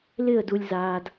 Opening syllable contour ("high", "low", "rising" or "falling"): falling